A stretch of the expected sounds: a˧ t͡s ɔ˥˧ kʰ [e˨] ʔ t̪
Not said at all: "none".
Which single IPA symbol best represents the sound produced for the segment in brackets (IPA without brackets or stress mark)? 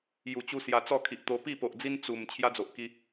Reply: i˨